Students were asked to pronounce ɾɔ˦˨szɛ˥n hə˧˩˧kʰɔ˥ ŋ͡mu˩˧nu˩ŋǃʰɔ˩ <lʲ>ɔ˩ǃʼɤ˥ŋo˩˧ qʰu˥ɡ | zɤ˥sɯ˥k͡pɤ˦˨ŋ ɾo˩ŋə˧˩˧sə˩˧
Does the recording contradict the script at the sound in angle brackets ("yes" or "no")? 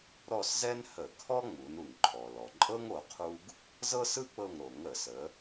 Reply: yes